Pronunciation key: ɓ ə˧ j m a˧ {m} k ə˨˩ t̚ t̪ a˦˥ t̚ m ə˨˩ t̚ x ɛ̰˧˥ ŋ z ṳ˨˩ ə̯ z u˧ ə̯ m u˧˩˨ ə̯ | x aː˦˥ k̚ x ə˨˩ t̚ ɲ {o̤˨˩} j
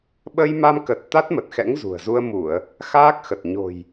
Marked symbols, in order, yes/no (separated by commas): yes, yes